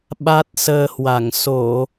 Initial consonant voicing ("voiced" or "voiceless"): voiced